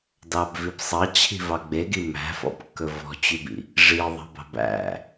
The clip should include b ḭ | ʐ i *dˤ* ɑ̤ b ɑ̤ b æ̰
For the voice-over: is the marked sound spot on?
no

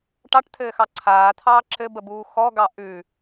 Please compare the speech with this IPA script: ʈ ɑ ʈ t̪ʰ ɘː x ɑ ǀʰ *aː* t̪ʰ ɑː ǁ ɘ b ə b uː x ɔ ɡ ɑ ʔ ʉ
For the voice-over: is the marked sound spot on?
yes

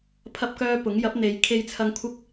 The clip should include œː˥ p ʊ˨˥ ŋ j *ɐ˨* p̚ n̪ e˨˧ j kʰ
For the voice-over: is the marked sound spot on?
no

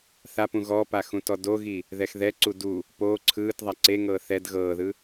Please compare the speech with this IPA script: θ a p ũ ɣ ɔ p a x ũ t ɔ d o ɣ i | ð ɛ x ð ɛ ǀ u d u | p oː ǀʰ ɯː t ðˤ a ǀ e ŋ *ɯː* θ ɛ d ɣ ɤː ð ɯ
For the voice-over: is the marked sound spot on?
no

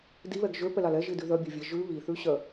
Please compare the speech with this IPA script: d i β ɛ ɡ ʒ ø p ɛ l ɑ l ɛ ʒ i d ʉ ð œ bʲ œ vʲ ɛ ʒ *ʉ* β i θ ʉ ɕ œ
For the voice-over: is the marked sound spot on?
yes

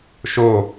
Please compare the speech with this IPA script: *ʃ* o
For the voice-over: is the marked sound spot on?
yes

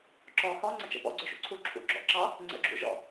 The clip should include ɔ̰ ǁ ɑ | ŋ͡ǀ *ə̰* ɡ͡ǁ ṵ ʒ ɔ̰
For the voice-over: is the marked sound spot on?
yes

